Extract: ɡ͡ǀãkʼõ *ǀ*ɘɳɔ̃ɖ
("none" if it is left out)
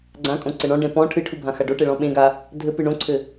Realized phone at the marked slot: ǀ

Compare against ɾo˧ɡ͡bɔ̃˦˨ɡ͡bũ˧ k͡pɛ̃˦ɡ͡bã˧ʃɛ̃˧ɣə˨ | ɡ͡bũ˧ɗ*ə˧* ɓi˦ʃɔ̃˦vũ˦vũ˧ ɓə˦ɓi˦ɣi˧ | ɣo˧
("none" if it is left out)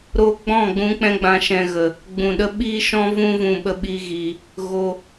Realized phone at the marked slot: ə˦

